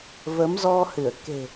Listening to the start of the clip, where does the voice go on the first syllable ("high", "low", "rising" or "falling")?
rising